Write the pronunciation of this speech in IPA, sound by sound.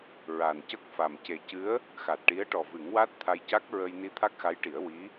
ɹa˨˩ncə˦˥k̚fa˨˩m ce˨˩cɨ˧˥ə̯ | xa˨˩t̚ʈi˧˥ə̯ ʈɔ˨˩vɨ˨˩˦ŋwa˦˥t̚ t̪ʰa˧jca˦˥k̚ɹə˧jni˧ t̪ʰa˦˥k̚xa˧˥jʈi˨˩˦ə̯ wi˧˥

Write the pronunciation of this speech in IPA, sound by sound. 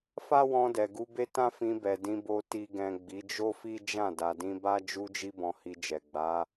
fa˦wɔ̃˧dɛ˨ ɡu˨˦be˦tã˦ fĩ˧bɛ˨ dĩ˧bo˧ ti˨ɡɛ̃˨ ɡ͡bi˨˦d͡ʒo˦fi˦d͡ʒã˦˨ da˨dĩ˧ba˦ d͡ʒu˧d͡ʒi˧ bɔ̃˧hi˧d͡ʒɛ˨ ɡ͡ba˨˦

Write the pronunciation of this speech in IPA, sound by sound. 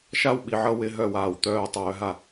ʃa˦wɓi˨ʕʌ˦ wɪ˦ ɦœ˦˨waː˨wt̪œː˦ tˤœː˨ɦa˦˨

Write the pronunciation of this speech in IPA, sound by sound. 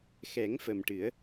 xɛ˨˩˦ŋ fə˨˩mʈɨ˨˩˦ə̯

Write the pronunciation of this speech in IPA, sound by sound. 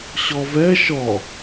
ɕɔvɛ ʃɔ

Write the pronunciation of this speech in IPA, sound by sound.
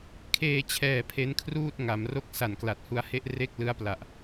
kʰeː˧t͡ɕʰɛː˨˩ pʰe˦˥nkʰruː˥˩t̚ ŋa˩˦mro˥˩k̚ sa˨˩nkla˨˩t̚hu˧a̯he˥˩ʔ re˥˩k̚ lɯ˦˥a̯pla˨˩ʔ

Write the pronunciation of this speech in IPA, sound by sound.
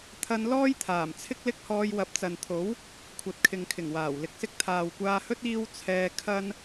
t̪ʰɐ˧nlɔː˥jt̪ʰaː˨˩m t͡sʰɪ˥k̚lɪ˥k̚hɔː˧j wɐ˨p̚t͡sɐ˨nt̪ʰo˨˥w | kʷʰɐ˨t̚kʰɪ˨ŋkʰɪ˨˩ŋwaː˨˩w lɪ˨˥k̚sɪ˥k̚ t̪ʰaː˨wkʷaː˧hɵ˥t̚ iː˥w t͡sʰɛː˧ kʰɐ˥n

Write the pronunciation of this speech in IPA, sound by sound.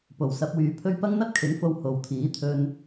po˨˩wsɐ˨˥p̚wyː˨˧pʰɵ˥ɥ pɐ˥ŋn̪ɐ˥t̚kʰɪ˨˥ŋfo˧w ho˨wt̪ʰiː˨˥t̪ʰɵ˧n

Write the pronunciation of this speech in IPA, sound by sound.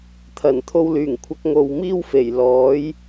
t̪ʰɐ˨˩nt̪ʰo˧wlyː˨˩ŋkʷʰɐ˧k̚ ŋo˨wmiː˥wfe˨˩jlɔː˨˥j

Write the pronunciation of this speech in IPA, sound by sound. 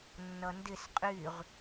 nːʌndɪs qʼyʁ

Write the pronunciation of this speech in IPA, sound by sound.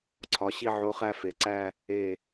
ǀʰɒ˩˧ ɕi˥˧ʕo˧˥ χæ˥˧fe˩˧ǀæ˥˧ | e˧˩

